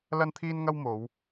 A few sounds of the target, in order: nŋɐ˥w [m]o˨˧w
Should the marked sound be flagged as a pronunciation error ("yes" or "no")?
no